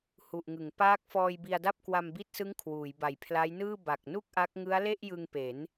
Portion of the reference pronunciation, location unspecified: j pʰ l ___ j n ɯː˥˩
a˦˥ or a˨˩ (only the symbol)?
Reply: a˦˥